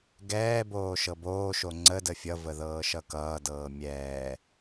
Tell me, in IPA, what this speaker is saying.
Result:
ɡ ɛː b oː ʃ ɤ b oː ʃ o ŋ͡ǀ ə d ə fʲ ʌ v ə ð ɤː ʃ ʌ k ʌː d ɤː mʲ ɛː

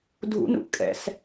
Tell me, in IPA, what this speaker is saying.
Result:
dʱ ṵ n ṵ ʔ kʼ ɛ̰ s

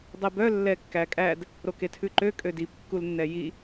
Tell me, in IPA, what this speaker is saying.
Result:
dˤ e b œ lː ɛ kː æ kʼ æ d | ɾ o k e tʰ ʉ ǃ ø kʼ ø d i p kː u l nː ɛ j i

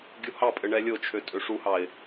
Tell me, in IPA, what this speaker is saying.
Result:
ɡʲ u h ɑ pʼ ɘ ɳ ɛ lʲ o t͡ʃʰ ø tʼ ø ʂ u h ɑ ɪ̯

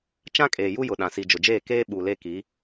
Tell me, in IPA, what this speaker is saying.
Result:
t͡ʃ ã˦ kʼ eː˨ j u˦ j ʊ˨ ɗ ã˨ s i˨ d͡ʒ ʊ˨ d͡ʒ eː˦˨ k eː˦ ɓ u˨ l e˦ k i˨˦

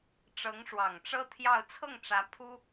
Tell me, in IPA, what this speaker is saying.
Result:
ʈ͡ʂ ɤ˧˥ ŋ ʂ w ɑ˨˩ ŋ ʈ͡ʂ ɤ˥ t̪ʰ j ɑ˥˧ ʊ̯ t͡sʰ ɤ˥˩ ŋ ʈ͡ʂ ä˧˥ pʰ u˥

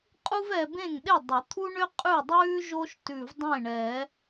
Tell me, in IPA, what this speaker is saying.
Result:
qʼ u˥ v ɛ˧ b ẽ˥˩ ŋ ɗ e˥˩ dˤ o˨˩˦ t̪ʰ u˥ ɳ ʏ˥ qʼ ʉ˥˩ dˤ ʉː˥ ʒ o˥ ʃ t ʉ˧˩ v dˤ ẽ˥˩ ɳ ɛ˨˩˦

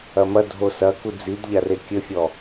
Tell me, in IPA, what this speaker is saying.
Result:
ɐ m ɐ dʱ o s ɐ k u d͡z i d ʎ a r e kʲ ɘ fʲ ɔ

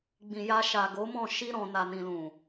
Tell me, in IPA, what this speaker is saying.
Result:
ɡ͡b ĩ˨ j a˧ ʃ a˨ ɡ o˨˦ m ɔ̃˦˨ ʃ i˧ ɾ ɔ̃˨ n a˨ n ĩ˨ l ũ˨

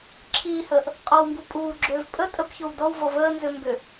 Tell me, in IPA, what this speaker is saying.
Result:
ǁʰ iː h əː ʔ | qʼ ɔ w m b u pʼ uː ɡ͡ǁ ʏː v pʼ ə tʼ ə p ç o w d ɔ w v ɔ v əː n z ø m b ʏ

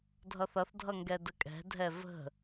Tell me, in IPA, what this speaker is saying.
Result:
dʱ ʌ θ ʌ θ dʱ ʌ ŋ ɡ ɛ d ə kʼ ɛ̤ dʱ ɛ v ə̤

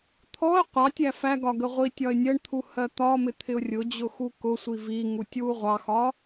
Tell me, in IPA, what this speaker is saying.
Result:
t̪ʰ ɔ ə̯ qʷ ɑ tʲ æ f æ ɡ ɒ ɡ ə ʁʷ i tʲ ɒ ɪ̯ nʲ ɜ ɳ t̪ʰ u h ɜ t̪ ɒ m ɪ t̪ʰ ɪ ʊ̯ rʲ ʊ d͡ʑ ʊ x u k ʊ sʷ i v i ŋ u tʲ w u ʁʷ ɑ x ɒ

